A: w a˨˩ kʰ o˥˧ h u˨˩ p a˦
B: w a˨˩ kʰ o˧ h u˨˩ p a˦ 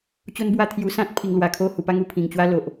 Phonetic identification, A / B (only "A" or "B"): A